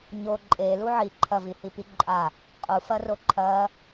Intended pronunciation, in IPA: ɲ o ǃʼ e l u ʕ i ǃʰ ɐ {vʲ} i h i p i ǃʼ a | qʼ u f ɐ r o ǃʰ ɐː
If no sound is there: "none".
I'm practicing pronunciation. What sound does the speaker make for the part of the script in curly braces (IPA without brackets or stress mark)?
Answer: v